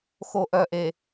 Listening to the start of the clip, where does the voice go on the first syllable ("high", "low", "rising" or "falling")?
low